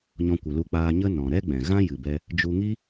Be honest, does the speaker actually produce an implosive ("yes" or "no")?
no